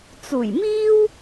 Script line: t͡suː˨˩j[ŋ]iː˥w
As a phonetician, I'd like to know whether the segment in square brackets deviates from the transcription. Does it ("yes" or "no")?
yes